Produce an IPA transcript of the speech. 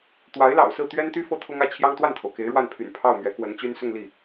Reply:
t̪ w a˧˥ ɪ̯ l ɑ̰˨˩ ʊ̯ s ɹ̩˥˩ t̪ ɥ ɛ˥ n t̪ y˥ f ɤ˥ t̪ʰ ʊ˥ ŋ ä˥˩ t͡ɕʰ j ɑ˥ ŋ t̪ w a˥˩ n t̪ʰ o˩ ʊ̯ k e˧˥ ɪ̯ ɻ w a˥˩ n pʰ y̰˨˩ n pʰ ɑ˥˩ ʊ̯ m ɥ ɛ˧˥ k w ə˧˥ n t͡ɕ y˥ n s ʊ˥˧ ŋ l i˥˩

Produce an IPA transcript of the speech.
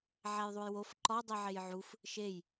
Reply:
ʕ æ j ðˤ u j w o f ǃ ɒ dˤ i ʕ e j ʕ u f | ʃ e j

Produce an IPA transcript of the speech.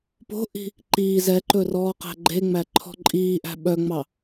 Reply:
p o̤ ʔ i̤ | ǃ iː z ɛ ǃ ɵ r ɔː q æ̤ ɡ͡ǃ e ŋ͡m æ ǃʰ ɔ̤ ǃʼ iː ʔ æ̤ ɓ œ ŋ͡m ɑ

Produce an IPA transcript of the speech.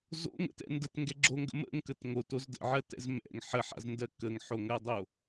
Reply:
z o̰ ŋ ə̰ t ɛ̰ n d ə t ŋ ɡ ɛ ɡ͡ǁ o ŋ ɡ ə̰ m ə̰ ŋ k ə t ŋ o t o z d ə̰ ʕ ɜ t ɛ̰ z m ɛ̰ ŋ ħ ə ħ a̰ z n d ɜ k ə ŋ ħ o ŋ ɜ dˤ o

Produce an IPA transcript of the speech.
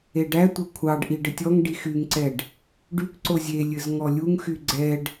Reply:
e ɖ æ tʷ ɘ kʷʰ ɑ ɖ ʔ i ɖ ɘ tʲ ɔ ŋ ɖ i x y ŋ ǀ ɛ ɖ | ɖ y k ǀ o zʲ e lʲ ɘ z ŋ ɔ lʲ u ŋ x y ɡ͡ǀ ɛ ɖ

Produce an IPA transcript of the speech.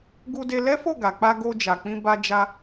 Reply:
ɡ u˧ d e˧ l ɛ˦ f o˦˨ ɡ a˨ k͡p a˧ ɡ o˧ d͡ʒ a˨ k͡p ĩ˧ b a˧ d͡ʒ a˧

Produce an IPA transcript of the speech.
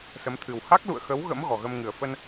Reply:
s ə˨˦ m t̪ʰ ɨ˨˩ w h a˦˥ k̚ l ṵ˧˨ ə̯ x ə˨˦ w ɣ ə̰˧˥ m ɣ ɔ˨˩ ɣ ə˧ m ŋ ɨ˨˩ ə̯ f ə˧ n

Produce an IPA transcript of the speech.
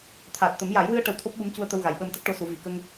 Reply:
t̪ʰ aː˨˩ t̚ t̪ ə˨˩˦ m j a˨˩˦ j w ɨ˧ ə̯ ʈ ə˧ w t̪ʰ o˦˥ p̚ ɓ u˧˥ m c u˧ ə̯ t̪ ə˧ w ɣ a˨˩ j ɓ əː˧ m t̪ ə˦˥ k̚ ʈ o˧˥ s u˨˩˦ v i˨˩ k ə˧ ŋ

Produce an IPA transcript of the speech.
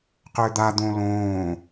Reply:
q ʏː d̪ a d̪ õ l õː

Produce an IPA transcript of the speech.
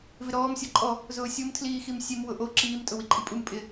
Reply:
v ɪ ɾ ɔː m sʲ ɔ ǃʼ ɔ | z ʊː sʲ o m tʰ l iː x i m sʲ e m w ʊ ʔ o ǁ iː m tʼ ʊ w i ǃʼ i pʼ u m pʼ ɪ

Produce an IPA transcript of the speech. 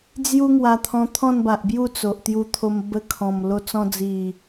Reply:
d͡z j u˦ ŋ w a˧ t̪ʰ ɔ̃˧ t̪ʰ ɔ̃˥˧ n b a˨ ʔ b j u˥˧ t͡s o˨ ʔ t̪ j u˧ t̪ʰ o˧ m b ə˧ kʰ ɔ̃˨˩ m l o˧ t͡s ɔ̃˧ d͡z i˨˩

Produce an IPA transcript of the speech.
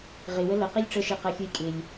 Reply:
ʁ ɪ w ə l ə q i lʲ ʈ͡ʂ ə ʃ e q ɜ xʲ u j kʼ ɪ lʲ

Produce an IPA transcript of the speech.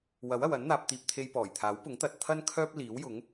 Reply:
w ɐ˨˥ w ɐ˨ w ɐ˨˥ n n̪ aː˧ p̚ t̪ iː˧ p̚ t̪ʰ e˧ j p ɔː˨˩ j t̪ʰ aː˨˥ w p ʊ˨˥ ŋ t̪ ɐ˨ t̚ t̪ʰ ɐ˥ n kʰ œː˥ p̚ l iː˨˥ w j ʊ˨˥ ŋ

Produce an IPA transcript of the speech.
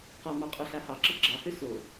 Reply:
q ɔ m ɑ qʼ ɔ ɬ a h ɑ ǁ ə ɡ͡ǁ ɑ h ø s o

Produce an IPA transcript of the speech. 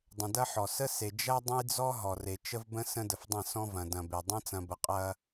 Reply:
dˤ ə̃˨ d ɐ˦ ħ ɔ˨ s ə˦ s e˨ d͡ʒ ɐ˦ dˤ ə̃˦ j d͡z ɔ˦ ɦ ɔ˨ r e˨ t͡ʃ ə˦ v b ə̃˦ s ə̃˦ d ə˨ f dˤ ə̃˦˨ s ɔ̃˦ v ɐ̃˨ d ɐ̃˨ b e˨ dˤ ɐ̃˦ t͡s ɐ̃˨ b ə˨ qʼ ɐ˦

